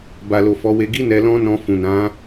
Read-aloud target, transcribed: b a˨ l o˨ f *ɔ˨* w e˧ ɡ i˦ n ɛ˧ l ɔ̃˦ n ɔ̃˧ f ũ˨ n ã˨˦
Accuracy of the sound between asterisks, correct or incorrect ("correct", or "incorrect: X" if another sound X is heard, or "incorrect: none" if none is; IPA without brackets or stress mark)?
incorrect: ɔ˨˦